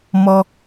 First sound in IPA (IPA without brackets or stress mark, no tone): m